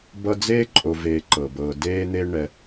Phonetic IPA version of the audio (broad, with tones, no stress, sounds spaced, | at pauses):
b ʌ˦ d͡z eː˥ ǃʼ o˨ v eː˨ ǃ ɤ˩ b ɤː˨ d eː˥ n̪ e˥ ɳ ɛ˨